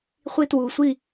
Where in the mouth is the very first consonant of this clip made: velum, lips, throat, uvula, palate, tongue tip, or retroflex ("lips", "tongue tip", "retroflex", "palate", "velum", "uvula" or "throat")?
uvula